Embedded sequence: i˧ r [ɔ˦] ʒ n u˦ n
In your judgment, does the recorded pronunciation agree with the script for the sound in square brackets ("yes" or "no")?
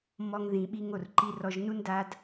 no